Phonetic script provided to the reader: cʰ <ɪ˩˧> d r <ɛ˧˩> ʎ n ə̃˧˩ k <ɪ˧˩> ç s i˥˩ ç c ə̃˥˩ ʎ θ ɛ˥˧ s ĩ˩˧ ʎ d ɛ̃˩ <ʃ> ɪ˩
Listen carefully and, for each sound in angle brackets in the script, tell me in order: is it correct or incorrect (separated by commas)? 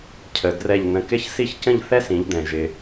incorrect, correct, incorrect, incorrect